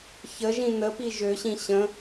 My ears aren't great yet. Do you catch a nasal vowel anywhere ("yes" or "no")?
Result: yes